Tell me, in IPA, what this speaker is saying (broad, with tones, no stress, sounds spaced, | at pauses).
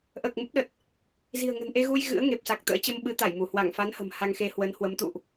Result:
ʔ əː˨˩ k̚ m ə˦˥ p̚ ɗ ə˨˩ t̚ | z i̤˨˩ ə̯ ŋ ə̤˨˩ n ʔ e˧ ɣ u˧ j ɣ ɨ̰˧˥ ə̯ ŋ e˨˩ p̚ s a˨˩ k̚ t̪ ə̰ː˧˥ t͡ɕ ə˧ m ɓ ɨ˨˦ t̪ a˧˩ j m u˧˩ h w a˧˩ ŋ f a˨˦ n h ə̤˨˩ m h a˧ ŋ x e˧ h w ə˨˦ n h w ə˨˦ m t̪ ṵ˧˨ ʔ